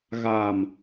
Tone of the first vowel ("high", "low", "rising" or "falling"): low